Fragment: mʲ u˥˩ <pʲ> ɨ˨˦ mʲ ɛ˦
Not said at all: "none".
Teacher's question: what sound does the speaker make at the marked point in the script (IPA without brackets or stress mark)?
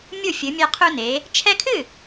fʲ